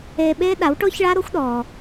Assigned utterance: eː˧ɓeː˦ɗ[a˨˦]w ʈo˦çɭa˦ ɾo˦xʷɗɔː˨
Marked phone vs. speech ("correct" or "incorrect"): correct